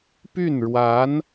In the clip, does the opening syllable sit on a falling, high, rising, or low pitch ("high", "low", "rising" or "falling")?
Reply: falling